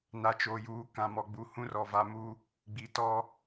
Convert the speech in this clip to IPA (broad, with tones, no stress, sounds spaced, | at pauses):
n a˨ t͡ʃ oː˨ j uː˨˦ k ã˨ m ɔ˨ ɡ͡b u˨ h ũ˦ r ɔ˨ v a˨ m u˦ | ɡ͡b i˨ t ɔ˦